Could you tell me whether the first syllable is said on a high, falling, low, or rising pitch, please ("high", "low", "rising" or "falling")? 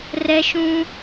high